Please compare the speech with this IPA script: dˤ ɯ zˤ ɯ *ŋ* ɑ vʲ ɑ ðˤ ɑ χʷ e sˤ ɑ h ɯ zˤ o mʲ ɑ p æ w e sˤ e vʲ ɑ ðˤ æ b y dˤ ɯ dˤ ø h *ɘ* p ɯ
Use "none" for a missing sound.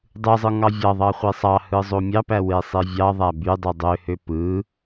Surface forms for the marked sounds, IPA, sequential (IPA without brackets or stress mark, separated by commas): ŋ, ø